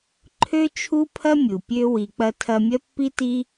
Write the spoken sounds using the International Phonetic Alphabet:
ǃʰ ø˦ t͡ʃʰ u˦ pʰ ɐ˦ mʲ u˨ pʲ ø˦ w i˨ k͡p ɐ˧ tʰ ɐ˧ mʲ ɐ˦ pː i˦ t i˦

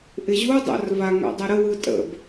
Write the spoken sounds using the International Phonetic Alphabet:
ʔ ɪ ʑ u dˤ a̰ r v a ŋ a̰ dˤ a ɾ ə w ɯ tʼ ə̰ b

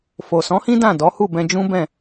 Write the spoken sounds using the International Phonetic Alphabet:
f o˨ s ɔ̃˨˦ h ĩ˦ d ã˦˨ d ɔ˨˦ h u˦˨ b ɛ̃˧ d͡ʒ ũ˦ b ɛ̃˦˨

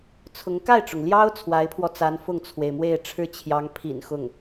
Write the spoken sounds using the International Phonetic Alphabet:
t͡sʰ ʊ˧˥ ŋ k a˥˩ ɪ̯ ʈ͡ʂ ʊ˩ ŋ l j ɑ˥ ʊ̯ t͡sʰ w a˧˥ ɪ̯ pʰ w ɔ˧ t͡s a˧˥ n f ʊ˥˩ ŋ t͡sʰ w e˩ ɪ̯ m w e˥˩ ɪ̯ ʈ͡ʂʰ ɻ̩˥ t͡ɕʰ j ɑ˧˥ ŋ pʰ ḭ˨˩ n x ʊ˥˩ ŋ

